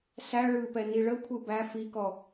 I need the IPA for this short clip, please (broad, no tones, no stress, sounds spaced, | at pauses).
s æ ɭ ɯ p ɛ n i ɭ ə kʷʰ ɯ b æ f i k ɔ